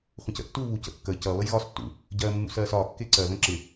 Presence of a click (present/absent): present